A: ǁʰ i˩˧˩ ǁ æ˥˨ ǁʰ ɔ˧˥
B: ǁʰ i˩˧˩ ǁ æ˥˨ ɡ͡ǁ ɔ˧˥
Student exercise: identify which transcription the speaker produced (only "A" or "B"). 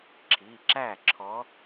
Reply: A